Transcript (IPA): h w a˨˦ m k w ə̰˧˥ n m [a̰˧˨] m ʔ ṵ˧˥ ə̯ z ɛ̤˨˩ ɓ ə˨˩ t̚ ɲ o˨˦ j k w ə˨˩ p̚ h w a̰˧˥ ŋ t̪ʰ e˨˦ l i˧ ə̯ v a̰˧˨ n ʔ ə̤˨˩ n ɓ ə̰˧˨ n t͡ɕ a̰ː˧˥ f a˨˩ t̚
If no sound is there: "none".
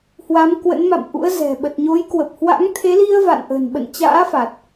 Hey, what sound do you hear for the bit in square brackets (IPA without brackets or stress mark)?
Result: a̰˧˨